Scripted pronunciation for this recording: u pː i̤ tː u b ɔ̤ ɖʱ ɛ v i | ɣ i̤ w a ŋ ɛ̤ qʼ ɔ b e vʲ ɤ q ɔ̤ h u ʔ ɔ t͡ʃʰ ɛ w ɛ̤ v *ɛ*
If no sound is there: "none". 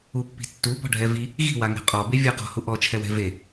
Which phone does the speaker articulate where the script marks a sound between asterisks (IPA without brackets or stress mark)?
e